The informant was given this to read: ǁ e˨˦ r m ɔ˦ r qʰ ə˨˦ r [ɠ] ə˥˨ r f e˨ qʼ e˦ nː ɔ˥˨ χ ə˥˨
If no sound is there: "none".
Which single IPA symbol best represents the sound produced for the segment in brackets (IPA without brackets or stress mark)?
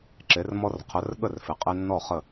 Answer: ɠ